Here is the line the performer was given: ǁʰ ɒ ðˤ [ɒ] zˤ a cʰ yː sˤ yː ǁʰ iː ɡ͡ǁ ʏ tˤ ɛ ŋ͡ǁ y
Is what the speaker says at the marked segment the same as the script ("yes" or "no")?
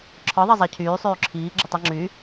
no